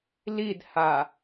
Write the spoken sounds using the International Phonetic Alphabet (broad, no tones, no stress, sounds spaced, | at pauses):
l i d h a